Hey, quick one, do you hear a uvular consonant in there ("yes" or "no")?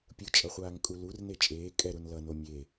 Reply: yes